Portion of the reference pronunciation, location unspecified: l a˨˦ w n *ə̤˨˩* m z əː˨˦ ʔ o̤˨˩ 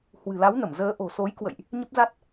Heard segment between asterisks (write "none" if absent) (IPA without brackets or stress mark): ə˧˩